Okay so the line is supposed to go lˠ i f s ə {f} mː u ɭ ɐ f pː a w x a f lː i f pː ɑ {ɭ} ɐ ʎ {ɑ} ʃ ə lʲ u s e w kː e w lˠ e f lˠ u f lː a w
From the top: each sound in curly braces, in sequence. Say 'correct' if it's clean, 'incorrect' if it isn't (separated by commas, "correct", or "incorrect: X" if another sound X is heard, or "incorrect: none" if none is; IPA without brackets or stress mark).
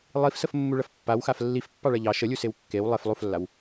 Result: correct, correct, correct